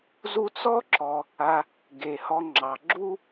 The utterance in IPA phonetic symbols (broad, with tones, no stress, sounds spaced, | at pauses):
z u˦ t͡s ɔ˥ ǁ ɔ˨ | a˨ | ɡ e˩ h ɔ˨ ŋ͡ǁ ɑ˩ ɡ͡ǁ u˦